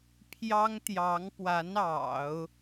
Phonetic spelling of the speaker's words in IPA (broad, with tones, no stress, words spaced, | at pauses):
pʰjɑ˥ŋt̪jɑ˧˥ŋpwa˧˥n ɑ̰˨˩˦ʊ̯